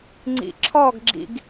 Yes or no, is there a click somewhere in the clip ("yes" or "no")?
yes